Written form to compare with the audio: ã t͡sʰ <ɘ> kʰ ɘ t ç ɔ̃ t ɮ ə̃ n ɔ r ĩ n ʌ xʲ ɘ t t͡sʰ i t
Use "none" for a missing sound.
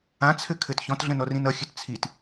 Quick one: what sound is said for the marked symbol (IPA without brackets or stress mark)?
ɘ